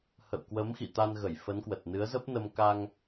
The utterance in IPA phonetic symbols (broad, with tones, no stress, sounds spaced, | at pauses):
h ə̰˧˨ w k w ə˨˦ m x ḭ˧˨ t̪ a˧ n ɣ ə˧˩ j f ə˨˦ n k w ə˨˩ t̚ n ɨ˨˦ ə̯ z ə˦˥ p̚ n ə˧ m k a˧ ŋ